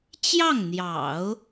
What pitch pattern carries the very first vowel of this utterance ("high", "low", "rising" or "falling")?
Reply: falling